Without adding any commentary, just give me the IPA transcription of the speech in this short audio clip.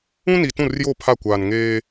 ũ˦ni˨ tũ˦˨rjo˦˨ pʰa˦˨kʷaː˨n ŋeː˦

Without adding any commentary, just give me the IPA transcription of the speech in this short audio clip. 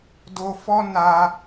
do˧fɔ˦ na˧

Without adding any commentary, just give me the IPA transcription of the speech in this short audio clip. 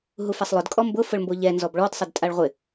ɦufɛsˤlˠʊd kʼɔmbʊ fʊɭmboʎɛ nzɔbɭɔd sˤɪdtʼaɭʁʷɪ

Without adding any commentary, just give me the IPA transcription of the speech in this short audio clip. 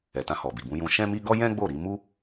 ɛ˨tã˧hɔ˨bi˨ bũ˧jũ˧ ʃɛ̃˦mi˦ ɡɔ˦jɛ̃˦ ɡ͡bo˦˨ ɾi˧mu˦

